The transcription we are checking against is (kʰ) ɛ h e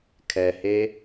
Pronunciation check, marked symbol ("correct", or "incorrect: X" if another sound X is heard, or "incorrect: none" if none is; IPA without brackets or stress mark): correct